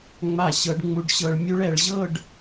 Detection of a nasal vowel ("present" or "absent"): absent